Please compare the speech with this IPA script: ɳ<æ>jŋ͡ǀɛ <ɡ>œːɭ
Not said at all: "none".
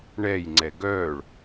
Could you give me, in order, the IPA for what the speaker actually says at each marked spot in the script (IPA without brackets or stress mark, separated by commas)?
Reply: ɛ, ɡ